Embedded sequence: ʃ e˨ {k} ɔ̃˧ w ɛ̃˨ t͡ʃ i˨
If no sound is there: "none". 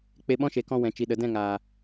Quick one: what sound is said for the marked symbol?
k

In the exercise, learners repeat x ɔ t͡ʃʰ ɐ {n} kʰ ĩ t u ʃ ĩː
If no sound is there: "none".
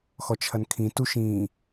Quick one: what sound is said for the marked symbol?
n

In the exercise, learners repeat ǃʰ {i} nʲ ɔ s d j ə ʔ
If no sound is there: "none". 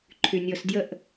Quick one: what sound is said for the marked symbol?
y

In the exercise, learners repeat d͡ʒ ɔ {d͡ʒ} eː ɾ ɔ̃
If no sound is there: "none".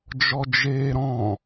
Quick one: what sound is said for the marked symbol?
d͡ʒ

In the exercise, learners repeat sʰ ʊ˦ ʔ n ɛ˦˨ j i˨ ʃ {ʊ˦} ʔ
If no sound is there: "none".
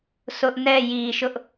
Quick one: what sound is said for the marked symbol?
ʊ˦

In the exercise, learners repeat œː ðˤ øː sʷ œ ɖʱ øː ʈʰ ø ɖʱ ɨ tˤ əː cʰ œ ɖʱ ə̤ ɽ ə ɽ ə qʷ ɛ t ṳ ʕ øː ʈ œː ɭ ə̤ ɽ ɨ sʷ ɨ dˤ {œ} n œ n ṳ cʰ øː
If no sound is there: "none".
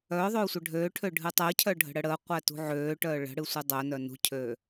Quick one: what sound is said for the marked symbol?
œ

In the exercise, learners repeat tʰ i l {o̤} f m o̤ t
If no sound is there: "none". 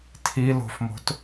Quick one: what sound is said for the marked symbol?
o̤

